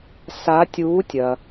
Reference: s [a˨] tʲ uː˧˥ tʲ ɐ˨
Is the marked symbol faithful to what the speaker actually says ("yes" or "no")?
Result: no